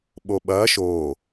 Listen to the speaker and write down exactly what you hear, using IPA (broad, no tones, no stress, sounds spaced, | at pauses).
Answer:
ɓ o ɓ ɐː ʃ oː